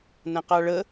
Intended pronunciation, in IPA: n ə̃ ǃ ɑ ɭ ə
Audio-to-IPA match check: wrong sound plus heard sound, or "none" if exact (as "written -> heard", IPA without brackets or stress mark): ǃ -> q